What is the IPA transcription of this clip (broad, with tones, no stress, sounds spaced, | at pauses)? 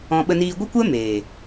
ɔ̃˧ ɓ ə˧ n iː˧ ɡʷ ə˦ kʷ ɛ˦ m eː˨